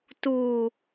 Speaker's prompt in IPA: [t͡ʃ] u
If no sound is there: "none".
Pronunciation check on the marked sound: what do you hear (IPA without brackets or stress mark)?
t